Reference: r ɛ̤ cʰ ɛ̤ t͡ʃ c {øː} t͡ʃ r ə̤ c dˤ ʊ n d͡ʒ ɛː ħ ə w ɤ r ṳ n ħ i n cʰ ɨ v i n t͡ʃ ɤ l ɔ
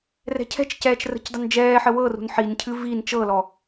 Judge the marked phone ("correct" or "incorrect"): incorrect